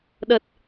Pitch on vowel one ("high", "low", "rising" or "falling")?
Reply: low